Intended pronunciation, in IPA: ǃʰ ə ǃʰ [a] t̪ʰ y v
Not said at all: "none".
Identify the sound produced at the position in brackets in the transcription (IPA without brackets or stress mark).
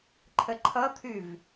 ʌ